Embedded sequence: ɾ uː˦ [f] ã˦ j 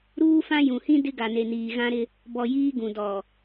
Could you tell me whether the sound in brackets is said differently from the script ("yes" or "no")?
no